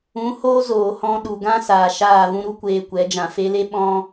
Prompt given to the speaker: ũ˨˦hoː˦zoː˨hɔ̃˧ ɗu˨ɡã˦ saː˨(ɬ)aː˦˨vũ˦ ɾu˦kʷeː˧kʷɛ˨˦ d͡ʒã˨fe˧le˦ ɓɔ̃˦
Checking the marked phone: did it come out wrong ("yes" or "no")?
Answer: yes